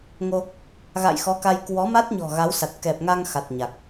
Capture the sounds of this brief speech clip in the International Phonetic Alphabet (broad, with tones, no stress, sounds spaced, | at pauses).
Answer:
ŋ o˧ | ɣ a̰˧˨ j x ɔ˨˦ k a˧ j k w ɔ˨˦ m a˦˥ t̚ ɲ ɔ̤˨˩ ɣ a˨˦ w s a˨˩ t̚ k ɛ˨˩ p̚ ŋ a˧ ŋ x a˨˩ t̚ ɲ a˨˩ k̚